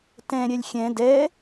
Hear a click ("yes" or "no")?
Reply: no